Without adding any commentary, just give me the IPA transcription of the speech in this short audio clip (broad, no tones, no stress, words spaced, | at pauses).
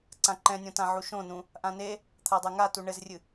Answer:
ǀãǃɛ̃nʲõtã ʕuʃõnũ | ʔãne | t̪ʰadˤɛŋa tuɳɘzrʲɨ